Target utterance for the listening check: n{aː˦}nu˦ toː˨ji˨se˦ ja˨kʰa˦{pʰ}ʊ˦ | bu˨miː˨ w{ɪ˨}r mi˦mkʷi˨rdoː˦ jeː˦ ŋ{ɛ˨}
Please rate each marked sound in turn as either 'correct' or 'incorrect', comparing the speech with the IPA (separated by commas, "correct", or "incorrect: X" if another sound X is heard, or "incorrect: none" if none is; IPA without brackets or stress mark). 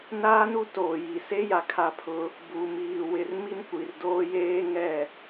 correct, correct, correct, incorrect: ɛ˦˨